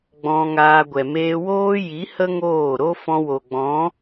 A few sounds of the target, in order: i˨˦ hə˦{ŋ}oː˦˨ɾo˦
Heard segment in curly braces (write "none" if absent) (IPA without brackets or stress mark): ŋ